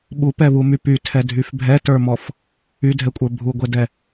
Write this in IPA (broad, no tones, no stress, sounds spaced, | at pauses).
ɓ u p ɛ β u m y p y tʰ ɛ dʱ y f bʱ ɛ t ə˞ m ɔ f | y dʱ ɛ kʷʼ ə˞ bʱ u ɡʷ ɛ d ɛ